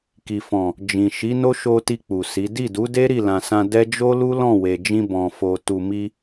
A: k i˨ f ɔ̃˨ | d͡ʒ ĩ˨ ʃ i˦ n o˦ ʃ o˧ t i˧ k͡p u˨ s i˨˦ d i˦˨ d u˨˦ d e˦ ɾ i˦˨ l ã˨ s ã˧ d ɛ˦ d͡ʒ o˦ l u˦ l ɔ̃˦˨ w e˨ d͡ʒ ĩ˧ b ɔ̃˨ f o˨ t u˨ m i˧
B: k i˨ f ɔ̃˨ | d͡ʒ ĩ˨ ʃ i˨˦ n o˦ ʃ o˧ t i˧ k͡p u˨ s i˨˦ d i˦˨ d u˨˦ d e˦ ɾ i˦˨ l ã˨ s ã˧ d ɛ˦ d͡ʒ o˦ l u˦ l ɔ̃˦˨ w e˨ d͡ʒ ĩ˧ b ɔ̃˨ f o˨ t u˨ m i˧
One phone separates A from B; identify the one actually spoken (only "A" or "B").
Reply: B